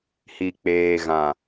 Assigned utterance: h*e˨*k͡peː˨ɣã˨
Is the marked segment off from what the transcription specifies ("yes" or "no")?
yes